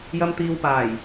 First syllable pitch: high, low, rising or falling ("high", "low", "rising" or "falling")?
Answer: low